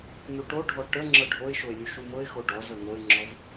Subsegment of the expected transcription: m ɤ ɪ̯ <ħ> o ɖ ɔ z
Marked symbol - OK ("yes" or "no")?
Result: no